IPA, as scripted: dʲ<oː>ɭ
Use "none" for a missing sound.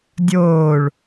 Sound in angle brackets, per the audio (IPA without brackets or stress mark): oː